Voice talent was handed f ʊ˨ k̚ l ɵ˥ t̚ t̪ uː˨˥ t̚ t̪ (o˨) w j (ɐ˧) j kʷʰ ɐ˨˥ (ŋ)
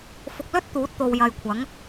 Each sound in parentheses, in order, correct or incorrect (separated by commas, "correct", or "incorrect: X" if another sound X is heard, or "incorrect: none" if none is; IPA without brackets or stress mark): correct, incorrect: ɐ˨, correct